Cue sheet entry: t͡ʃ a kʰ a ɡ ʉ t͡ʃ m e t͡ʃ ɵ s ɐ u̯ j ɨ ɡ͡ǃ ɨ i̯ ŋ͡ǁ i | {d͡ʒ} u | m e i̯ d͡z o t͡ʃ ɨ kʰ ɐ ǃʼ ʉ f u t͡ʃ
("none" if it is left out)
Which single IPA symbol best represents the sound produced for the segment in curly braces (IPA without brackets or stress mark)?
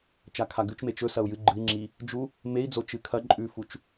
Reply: d͡ʒ